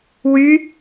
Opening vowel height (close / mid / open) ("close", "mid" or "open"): close